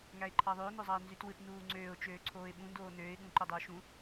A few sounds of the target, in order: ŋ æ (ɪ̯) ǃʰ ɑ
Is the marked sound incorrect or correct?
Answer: correct